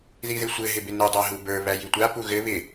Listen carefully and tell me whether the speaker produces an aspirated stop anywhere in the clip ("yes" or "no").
no